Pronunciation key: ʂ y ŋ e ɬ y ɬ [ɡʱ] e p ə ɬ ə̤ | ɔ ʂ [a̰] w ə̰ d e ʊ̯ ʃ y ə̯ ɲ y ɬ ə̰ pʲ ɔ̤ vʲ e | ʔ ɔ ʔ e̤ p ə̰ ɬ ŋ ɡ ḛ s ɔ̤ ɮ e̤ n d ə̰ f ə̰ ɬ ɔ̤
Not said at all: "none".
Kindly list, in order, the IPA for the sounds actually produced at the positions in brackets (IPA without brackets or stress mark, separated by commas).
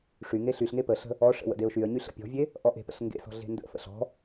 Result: ŋ, ə̰